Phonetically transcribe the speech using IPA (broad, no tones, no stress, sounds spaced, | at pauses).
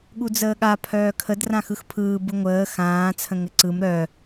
ɠ u d͡z əː ɠ a pʰ œː kʰ ə d r ã x ɯ x pʰ ɯː b ɯ ŋʷ əː x ãː t͡sʰ ə̃ ŋ ɘ ǀ ɯ m ɾ œ